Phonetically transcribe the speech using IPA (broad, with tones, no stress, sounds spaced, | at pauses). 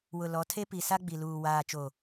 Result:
w ʊ˨ l ɔ˨˦ tʰ e˦ p i˨ s a˦ ɡ͡b i˨ l uː˨ w aː˨ t͡ʃ o˨